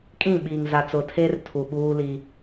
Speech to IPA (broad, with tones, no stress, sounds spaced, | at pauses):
kʼ ĩ˦˨ ɓ iː˨ ŋ z a˨ t͡s ʊ˨ tʰ e˦ r tʰ u˨ ɓ uː˦ l i˦